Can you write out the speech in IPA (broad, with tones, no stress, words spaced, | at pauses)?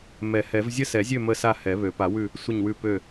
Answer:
mɛ˨˩˦hɛ˨˩˦v zʲə˦˨sɛ˨˩˦zʲø˦˨ mə˦˨sa˦˨ hɛ˨˩˦βø˨˩˦ pa˨˩˦wʉ˦˨ | sʷə˦˨ɲwʉ˦˨ pø˦˨